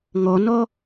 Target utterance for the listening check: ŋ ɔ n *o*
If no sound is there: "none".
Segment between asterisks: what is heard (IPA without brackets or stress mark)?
ɔ